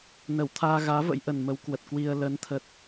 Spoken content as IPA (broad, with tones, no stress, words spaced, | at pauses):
nə˧˩wt̪ʰaː˧ɣaː˨˦və̰˧˥j ʔə˨˩nmə˨˦w kwə˨˩t̚kwi˧ə̯ lə˨˦n t̪ʰə˨˩t̚